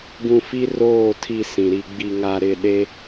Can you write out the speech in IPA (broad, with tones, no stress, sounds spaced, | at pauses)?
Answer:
ɡ ũ˨ f i˦ r oː˦˨ tʰ i˨ s ĩ˨ ɾ i˨ ɡ͡b i˨ ŋ a˨ ɾ ɪ˦˨ ɗ e˦